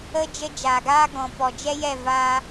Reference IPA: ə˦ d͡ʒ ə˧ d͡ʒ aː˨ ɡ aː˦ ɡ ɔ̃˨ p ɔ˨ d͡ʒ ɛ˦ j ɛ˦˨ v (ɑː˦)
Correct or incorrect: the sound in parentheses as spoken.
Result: incorrect: aː˦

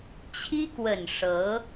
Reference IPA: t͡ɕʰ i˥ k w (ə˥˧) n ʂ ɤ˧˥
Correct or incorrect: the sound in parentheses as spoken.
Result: incorrect: ə˨˩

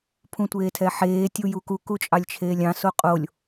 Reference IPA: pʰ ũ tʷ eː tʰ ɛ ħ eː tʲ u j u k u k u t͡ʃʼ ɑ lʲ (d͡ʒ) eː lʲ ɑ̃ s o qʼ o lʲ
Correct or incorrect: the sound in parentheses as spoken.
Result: incorrect: t͡ʃʰ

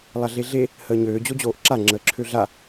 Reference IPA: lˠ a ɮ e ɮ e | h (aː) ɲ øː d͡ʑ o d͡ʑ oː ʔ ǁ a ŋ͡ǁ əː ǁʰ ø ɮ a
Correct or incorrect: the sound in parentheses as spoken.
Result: incorrect: əː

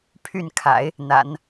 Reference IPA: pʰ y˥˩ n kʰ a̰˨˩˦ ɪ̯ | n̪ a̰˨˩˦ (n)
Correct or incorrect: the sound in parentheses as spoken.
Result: correct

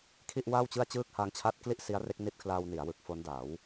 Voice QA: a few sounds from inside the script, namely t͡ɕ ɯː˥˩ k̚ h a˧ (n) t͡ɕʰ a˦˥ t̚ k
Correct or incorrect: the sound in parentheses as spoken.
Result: incorrect: ŋ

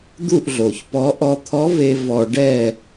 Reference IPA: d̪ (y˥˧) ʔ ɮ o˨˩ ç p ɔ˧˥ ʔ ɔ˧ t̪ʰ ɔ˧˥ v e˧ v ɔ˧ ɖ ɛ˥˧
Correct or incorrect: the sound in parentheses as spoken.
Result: incorrect: u˥˧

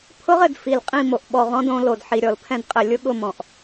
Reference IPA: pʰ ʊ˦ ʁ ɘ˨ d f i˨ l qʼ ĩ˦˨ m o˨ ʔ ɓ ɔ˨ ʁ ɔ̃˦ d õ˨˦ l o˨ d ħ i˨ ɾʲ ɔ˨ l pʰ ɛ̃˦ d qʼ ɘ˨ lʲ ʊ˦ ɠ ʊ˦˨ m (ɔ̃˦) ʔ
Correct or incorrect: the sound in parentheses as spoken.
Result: incorrect: ɔ̃˨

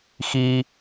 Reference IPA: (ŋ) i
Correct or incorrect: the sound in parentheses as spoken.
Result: incorrect: x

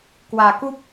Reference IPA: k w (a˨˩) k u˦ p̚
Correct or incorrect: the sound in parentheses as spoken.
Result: correct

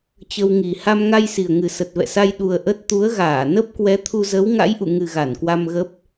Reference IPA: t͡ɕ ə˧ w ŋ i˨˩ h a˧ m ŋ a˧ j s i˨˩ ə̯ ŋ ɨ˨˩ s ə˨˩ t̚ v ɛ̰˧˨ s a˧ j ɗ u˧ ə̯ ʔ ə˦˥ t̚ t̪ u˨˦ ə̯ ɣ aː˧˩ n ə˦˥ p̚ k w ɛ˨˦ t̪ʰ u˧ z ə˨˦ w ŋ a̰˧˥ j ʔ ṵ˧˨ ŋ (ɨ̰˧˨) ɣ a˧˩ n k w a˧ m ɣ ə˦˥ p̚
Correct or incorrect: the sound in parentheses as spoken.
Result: incorrect: ɨ˨˩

